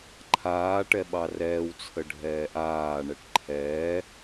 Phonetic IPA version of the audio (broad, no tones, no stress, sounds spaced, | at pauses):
ǃʰ aː ʈ ɛ ɓ ɑ r ɛː w t͡sʰ ə ɖʱ ɛː ʔ aː ɳ ɛ ʈ ǃʰ ɛː